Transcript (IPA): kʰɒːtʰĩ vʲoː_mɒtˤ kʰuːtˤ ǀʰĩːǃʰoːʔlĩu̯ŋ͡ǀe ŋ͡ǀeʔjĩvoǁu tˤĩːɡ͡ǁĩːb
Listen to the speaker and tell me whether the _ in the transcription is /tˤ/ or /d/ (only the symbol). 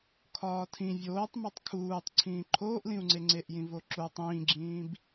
tˤ